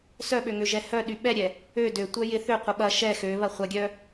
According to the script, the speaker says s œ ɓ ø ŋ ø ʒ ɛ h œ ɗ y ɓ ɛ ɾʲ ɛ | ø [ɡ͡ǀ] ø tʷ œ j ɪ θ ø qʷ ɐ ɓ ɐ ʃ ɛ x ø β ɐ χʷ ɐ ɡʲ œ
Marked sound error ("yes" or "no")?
yes